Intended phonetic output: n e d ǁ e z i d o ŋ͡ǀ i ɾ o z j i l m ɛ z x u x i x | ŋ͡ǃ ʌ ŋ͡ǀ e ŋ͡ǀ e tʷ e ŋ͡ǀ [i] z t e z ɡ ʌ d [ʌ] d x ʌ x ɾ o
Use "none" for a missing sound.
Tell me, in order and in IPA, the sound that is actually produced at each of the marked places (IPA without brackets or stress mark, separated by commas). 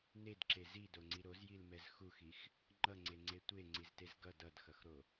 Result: i, ʌ